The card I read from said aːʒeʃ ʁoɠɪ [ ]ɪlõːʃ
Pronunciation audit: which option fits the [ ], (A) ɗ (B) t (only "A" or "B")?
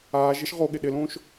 A